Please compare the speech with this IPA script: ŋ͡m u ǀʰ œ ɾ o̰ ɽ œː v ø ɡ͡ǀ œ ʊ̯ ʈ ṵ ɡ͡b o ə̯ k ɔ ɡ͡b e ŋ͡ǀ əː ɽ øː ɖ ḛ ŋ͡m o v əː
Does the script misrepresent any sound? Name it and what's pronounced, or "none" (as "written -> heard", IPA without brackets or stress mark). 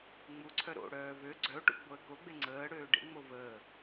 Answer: ɔ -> o